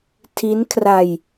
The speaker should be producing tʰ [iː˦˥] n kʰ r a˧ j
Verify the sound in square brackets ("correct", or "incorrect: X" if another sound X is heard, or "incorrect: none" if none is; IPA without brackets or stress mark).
incorrect: i˦˥